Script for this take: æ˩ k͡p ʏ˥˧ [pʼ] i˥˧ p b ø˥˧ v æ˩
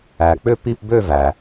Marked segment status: incorrect: p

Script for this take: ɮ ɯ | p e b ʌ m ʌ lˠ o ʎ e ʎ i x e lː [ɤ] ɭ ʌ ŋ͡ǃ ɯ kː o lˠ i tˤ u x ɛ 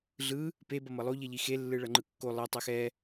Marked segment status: incorrect: ɯ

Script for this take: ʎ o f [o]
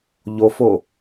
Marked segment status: correct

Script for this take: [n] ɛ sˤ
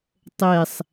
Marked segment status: incorrect: tˤ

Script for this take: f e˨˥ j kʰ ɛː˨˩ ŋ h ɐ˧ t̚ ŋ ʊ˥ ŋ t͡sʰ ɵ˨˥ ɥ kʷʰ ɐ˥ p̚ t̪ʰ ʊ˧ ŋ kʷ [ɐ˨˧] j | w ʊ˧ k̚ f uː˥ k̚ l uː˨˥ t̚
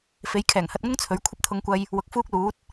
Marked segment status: incorrect: ɐ˧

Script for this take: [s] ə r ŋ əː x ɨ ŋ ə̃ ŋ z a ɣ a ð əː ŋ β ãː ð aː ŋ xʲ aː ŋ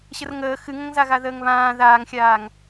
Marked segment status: incorrect: ɕ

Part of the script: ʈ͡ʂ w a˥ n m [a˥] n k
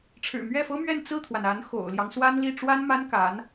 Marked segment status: correct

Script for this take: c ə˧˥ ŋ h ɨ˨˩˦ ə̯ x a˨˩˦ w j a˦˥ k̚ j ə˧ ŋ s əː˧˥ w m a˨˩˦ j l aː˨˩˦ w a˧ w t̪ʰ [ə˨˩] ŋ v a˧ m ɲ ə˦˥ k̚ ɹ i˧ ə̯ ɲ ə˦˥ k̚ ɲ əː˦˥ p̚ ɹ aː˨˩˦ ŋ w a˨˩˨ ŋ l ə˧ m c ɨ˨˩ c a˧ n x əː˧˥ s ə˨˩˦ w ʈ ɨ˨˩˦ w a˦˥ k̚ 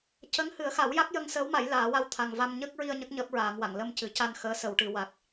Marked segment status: incorrect: a˨˩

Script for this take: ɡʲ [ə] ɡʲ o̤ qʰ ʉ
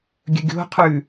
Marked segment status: correct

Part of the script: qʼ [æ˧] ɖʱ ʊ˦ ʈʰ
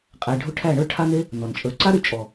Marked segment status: correct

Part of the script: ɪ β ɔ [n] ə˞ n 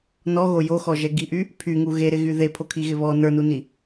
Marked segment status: correct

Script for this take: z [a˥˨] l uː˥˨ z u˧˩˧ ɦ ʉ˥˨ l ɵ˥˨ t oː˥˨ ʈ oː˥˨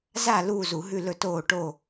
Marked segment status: correct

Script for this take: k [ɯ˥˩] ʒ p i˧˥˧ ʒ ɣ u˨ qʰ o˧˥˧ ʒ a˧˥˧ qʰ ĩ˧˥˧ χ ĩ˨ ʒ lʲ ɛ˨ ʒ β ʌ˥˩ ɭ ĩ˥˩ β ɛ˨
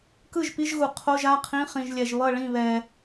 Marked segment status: correct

